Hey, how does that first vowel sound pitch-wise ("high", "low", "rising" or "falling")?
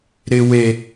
high